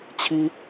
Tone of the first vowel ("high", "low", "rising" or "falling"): high